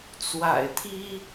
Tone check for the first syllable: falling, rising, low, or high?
low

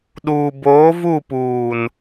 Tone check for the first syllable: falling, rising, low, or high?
low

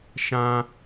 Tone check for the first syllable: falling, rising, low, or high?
high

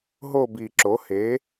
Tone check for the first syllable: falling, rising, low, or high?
falling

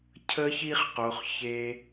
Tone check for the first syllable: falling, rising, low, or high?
high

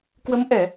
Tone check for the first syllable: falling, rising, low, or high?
rising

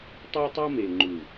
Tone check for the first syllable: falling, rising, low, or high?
high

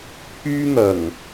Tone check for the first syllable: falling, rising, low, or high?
high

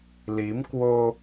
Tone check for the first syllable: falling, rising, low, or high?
rising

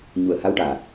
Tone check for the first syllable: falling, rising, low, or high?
low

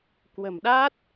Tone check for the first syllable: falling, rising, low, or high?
low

